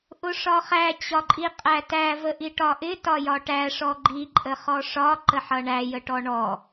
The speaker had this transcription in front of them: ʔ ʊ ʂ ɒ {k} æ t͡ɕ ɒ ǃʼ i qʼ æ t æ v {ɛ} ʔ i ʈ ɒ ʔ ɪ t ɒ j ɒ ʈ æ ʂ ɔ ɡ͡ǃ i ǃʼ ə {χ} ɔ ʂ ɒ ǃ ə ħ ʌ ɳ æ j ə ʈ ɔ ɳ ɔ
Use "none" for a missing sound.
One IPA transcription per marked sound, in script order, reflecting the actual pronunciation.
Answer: χ, ə, χ

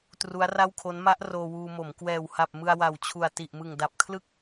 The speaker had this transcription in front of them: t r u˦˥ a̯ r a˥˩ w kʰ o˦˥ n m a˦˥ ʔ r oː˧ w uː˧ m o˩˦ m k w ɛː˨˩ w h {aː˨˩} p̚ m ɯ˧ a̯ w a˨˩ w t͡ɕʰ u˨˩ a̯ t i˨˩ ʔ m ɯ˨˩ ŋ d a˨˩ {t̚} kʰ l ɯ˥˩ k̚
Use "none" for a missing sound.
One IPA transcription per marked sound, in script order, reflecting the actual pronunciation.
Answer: a˨˩, p̚

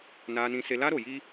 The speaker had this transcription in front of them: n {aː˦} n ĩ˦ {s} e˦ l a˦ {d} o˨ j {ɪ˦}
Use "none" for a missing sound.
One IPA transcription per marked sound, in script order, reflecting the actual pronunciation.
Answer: aː˦, s, ɾ, i˦

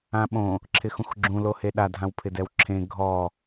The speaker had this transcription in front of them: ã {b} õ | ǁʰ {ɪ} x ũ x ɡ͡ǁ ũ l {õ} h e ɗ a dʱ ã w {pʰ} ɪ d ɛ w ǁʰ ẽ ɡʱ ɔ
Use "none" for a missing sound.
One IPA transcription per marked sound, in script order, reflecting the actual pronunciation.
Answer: ɓ, ɪ, o, pʰ

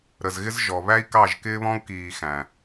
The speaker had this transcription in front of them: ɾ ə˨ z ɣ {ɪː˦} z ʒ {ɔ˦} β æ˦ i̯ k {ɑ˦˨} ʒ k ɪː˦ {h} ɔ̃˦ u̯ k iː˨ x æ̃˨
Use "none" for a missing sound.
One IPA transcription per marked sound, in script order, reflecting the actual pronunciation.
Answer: ɪ˦, ɔ˨, ɑ˦˨, β

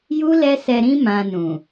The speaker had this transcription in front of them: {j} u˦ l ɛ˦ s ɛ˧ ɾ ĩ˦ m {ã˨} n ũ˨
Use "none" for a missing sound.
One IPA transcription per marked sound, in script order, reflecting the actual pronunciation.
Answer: j, ã˧

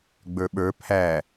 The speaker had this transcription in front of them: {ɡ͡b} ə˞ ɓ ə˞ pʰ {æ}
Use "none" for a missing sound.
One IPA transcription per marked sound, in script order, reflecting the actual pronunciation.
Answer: ɡ͡b, æ

